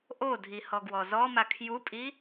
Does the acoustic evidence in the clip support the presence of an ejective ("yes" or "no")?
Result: yes